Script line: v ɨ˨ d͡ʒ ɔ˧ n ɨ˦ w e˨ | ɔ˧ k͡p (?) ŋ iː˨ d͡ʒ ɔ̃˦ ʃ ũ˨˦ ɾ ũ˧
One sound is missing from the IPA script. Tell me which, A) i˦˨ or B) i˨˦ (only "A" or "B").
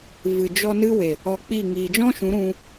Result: A